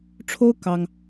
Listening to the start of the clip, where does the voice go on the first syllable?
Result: high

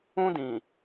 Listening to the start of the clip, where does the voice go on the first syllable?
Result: high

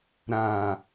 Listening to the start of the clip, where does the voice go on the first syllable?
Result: low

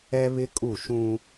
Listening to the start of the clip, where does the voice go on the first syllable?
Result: high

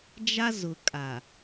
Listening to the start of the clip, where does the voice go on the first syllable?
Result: high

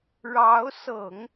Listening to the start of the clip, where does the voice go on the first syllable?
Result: rising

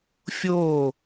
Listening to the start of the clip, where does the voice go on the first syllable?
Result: falling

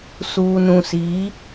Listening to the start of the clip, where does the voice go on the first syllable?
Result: low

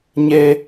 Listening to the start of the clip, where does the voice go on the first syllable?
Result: high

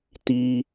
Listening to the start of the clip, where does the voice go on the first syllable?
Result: low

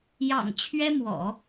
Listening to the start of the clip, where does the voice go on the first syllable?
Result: low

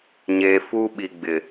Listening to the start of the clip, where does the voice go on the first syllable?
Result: low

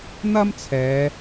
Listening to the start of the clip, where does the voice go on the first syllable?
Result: high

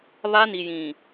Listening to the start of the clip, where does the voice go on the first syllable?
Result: high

